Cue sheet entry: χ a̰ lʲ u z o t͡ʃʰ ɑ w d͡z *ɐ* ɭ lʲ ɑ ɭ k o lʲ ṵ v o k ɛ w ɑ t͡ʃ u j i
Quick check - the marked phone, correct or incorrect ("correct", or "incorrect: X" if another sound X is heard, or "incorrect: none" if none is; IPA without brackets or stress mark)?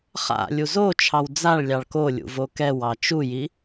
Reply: incorrect: a